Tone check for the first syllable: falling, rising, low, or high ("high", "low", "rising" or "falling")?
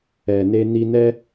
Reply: low